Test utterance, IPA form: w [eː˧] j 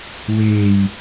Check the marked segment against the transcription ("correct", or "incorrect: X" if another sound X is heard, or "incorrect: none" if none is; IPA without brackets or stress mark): correct